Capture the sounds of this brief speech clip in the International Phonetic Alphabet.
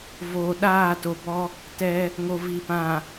v oː˨ ɗ aː˦˨ t o˨ b ɔ˦ | t ɛ˦ | ŋ o˨ v i˨ p ã˨

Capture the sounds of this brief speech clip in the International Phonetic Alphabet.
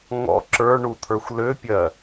ŋ ɔ̰ ǁ ə˞ ɳ u t̪ʰ ə˞ xʷ l ø pʲ ɜ

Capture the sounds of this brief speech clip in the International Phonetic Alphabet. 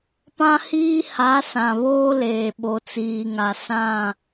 p ã˦ h iː˦ h a˨˦ s ã˨ β oː˦ l eː˨ ɓ o˨ t͡s iː˨ ŋ a˨ s ã˦˨

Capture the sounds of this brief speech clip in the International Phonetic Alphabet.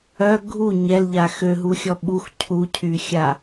œ ɡʱ u ɲ ɛ l ʎ a x ø ɦ u xʲ ɔ ɓ u x cʰ u cʰ y xʲ a

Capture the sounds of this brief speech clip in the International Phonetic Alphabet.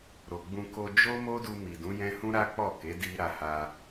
ɾ o˨ ɡ͡b ũ˧ k o˧ d͡ʒ o˦ m o˦ d u˧ m i˨ d ũ˨˦ j ɛ̃˦ h ũ˦ ɾ a˦ k͡p ɔ˦˨ k e˨˦ d i˦ ɾ a˧ h a˧

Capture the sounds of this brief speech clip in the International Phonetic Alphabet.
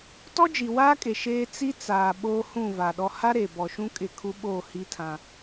t ɔ˦ d͡ʒ i˨ w aː˦ kʼ e˨ ʃ eː˦ t͡s i˦ t͡s aː˨ ɓ oː˦ h ũ˦˨ v a˨ ɗ ɔ˦ h a˦ ɾ e˨ b ɔ˨ ʃ ũ˦ kʼ ɪ˦˨ kʰ u˦ ɓ oː˦˨ h i˦ tʰ ã˦

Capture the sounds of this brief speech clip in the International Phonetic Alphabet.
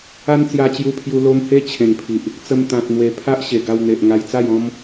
a˦ n t͡s j a˧ t͡ɕ j u˧ pʰ j u˧ l o˦ m h e˦ t͡ɕʰ ẽ˨˩ ŋ pʰ i˨ ʔ | t͡s ə˧ m t̪ ã˨ t̚ n̪ w e˨˩ pʰ a˦ ʔ ɕ e˨˩ ɡ a˧ w n̪ e˨ ʔ ŋ a˧ j t͡s a˥˧ j ɔ̃˦ m

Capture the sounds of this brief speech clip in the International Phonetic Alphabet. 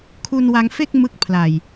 kʰ u˧ n w a˧ ŋ f e˥˩ k̚ m ɯ˦˥ k̚ pʰ l a˨˩ j

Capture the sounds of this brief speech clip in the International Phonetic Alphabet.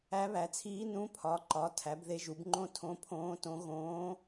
æ˧˥ β æ˩˥ t͡sʰ iː˧˥ n ũ˧˥ pʰ ɒ˩˥ ǃ ɒ˩˥ tʰ æ˩˥ b ð e˧˥ ʒ u˩˥ b ŋ͡ǃ õ˥ tʰ õ˧˥ pʰ õː˧˥ t õ˧˥ ɣ õː˧˥

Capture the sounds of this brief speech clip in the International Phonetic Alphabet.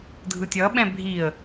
dʱ ɯ tʲ ʌ ɓ ɛ̃ bʱ i ə̯

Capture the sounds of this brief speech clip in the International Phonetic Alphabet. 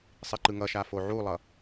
sˤ i ǃ ɯ ŋ ʌ ʃ a f o ʕ u lˠ ʌ

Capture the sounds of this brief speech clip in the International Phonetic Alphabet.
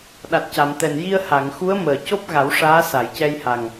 ɗ a˨˩ t̚ c a˨˩˨ m t̪ ɛ˨˩ n j i˧ ə̯ h a˨˩˨ ŋ x u˧˥ ə̯ m əː˨˩ c o˦˥ p̚ ɣ a˨˩˦ w ʂ aː˧˥ s a˨˩˨ j c ɛ˧ j h a˨˩ ŋ

